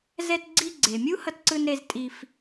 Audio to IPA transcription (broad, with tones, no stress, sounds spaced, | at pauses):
z ɛ˧ t ɡ͡ǀ i˧ ɡ͡ǀ e˩ mʲ u˥ h ʌ˧ t ǀ ɯ˧ n ɾ e˧ z tʼ i˧ f